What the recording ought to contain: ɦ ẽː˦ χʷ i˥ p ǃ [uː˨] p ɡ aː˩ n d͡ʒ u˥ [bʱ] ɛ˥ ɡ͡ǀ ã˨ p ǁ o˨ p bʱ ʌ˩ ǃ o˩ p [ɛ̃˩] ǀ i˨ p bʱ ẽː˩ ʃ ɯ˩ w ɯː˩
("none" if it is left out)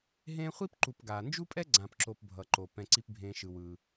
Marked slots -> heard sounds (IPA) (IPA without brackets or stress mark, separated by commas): u˨, pʼ, ɛ̃˩